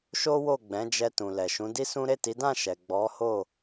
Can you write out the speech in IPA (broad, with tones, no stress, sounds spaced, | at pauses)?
ʃ o˦ w o˦˨ ɡ͡b ɛ̃˨˦ d͡ʒ ɛ˧ t ũ˨ l ɛ˨ ʃ ũ˨˦ d i˦ s ũ˦ ɾ e˦˨ t i˨˦ d ã˦˨ ʃ ɛ˨ ɡ͡b ɔ˨˦ h o˦˨